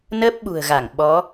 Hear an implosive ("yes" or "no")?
yes